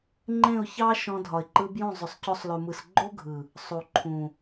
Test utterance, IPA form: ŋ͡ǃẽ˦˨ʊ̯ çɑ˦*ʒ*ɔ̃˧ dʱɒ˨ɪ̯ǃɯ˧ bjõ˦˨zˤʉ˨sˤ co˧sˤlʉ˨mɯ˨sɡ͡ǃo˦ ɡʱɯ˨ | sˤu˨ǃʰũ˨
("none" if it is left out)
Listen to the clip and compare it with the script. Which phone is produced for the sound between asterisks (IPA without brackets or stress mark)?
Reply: ʃ